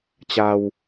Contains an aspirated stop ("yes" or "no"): no